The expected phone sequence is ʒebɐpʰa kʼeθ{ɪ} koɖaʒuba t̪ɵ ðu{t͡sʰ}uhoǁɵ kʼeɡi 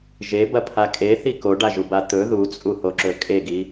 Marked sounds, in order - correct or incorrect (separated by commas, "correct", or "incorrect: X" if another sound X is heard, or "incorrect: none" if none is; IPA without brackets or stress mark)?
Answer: incorrect: i, incorrect: t͡sʼ